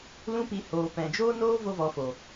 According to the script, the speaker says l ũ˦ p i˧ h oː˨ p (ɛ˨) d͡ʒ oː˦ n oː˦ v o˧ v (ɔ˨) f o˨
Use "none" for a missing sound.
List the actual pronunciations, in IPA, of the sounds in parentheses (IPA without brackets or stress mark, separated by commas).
ɛ̃˨, ɔ˨